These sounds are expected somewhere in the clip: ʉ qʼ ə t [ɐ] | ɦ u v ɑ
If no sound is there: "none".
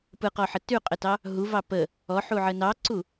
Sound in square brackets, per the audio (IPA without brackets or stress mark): ɑ